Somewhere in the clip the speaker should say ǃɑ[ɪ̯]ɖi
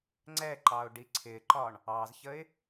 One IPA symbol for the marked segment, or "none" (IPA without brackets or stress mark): ʊ̯